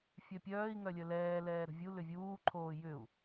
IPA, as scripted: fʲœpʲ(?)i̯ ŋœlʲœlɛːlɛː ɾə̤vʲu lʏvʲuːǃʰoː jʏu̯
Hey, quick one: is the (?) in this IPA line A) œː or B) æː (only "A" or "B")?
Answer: A